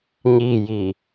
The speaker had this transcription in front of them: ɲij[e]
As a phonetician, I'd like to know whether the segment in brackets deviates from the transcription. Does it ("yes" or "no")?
yes